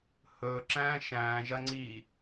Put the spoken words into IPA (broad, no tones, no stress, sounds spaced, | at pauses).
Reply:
h ɵː ǁ æ̃ː ʃ æ̃ː ʒ ɐ ŋ͡ǀ iː